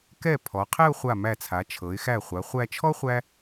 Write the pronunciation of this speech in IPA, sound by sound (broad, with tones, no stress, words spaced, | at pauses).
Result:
kɛ˧˩ pʰɔ˩˧ qʰɛ˥˧ʊ̯χʷa˧˩mæ˧˩t͡sʰa˩˧ t͡ʃʰɤ˩˧ɪ̯xæ˧˩ χʷa˩˧χʷæ˧t͡ʃʰɔ˥ χʷæ˥